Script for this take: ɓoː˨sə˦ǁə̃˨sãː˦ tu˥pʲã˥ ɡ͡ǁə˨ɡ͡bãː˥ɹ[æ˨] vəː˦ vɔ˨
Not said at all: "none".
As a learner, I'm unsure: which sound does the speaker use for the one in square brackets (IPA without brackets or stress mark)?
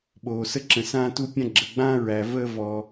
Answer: æ˨